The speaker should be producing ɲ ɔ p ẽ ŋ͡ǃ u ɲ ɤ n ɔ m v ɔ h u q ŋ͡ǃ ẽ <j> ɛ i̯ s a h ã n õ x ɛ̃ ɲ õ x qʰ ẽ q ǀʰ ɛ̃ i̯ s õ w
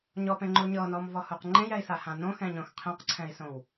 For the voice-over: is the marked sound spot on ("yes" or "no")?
yes